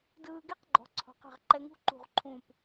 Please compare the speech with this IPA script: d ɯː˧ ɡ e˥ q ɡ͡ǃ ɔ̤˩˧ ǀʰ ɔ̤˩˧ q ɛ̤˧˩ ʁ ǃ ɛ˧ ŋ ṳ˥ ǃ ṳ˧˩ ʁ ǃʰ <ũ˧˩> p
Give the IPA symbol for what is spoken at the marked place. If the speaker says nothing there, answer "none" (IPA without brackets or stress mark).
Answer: ũ˧˩